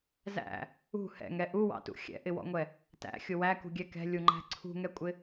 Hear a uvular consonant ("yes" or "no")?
no